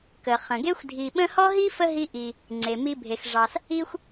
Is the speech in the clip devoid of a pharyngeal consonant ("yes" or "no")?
yes